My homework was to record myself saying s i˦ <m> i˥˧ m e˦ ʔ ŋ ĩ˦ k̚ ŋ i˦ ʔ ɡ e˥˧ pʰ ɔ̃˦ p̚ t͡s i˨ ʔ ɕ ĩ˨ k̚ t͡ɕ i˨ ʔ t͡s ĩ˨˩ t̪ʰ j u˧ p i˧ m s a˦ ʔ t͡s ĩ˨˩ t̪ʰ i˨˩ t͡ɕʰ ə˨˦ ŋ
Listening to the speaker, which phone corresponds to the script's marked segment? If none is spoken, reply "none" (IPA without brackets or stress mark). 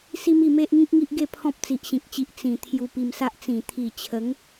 m